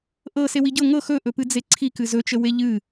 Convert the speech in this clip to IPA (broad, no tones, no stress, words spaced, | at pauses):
ʔɤ sewiɟɤ ŋɤ xɵʔɵpɨ d͡zeǀʰikɨ zɵt͡ʃəwe ʎɨ